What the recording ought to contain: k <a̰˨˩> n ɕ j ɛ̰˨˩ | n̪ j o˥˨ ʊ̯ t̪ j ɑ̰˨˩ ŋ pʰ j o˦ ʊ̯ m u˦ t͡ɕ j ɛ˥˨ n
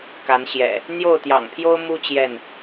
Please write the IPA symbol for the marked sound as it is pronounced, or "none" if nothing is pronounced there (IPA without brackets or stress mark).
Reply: a˨˦